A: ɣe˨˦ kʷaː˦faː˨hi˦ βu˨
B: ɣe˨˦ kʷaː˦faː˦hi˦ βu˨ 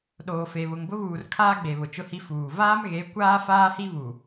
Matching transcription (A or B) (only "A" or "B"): B